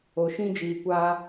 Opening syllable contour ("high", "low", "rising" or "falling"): low